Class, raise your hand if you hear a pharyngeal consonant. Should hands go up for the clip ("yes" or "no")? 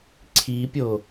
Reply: no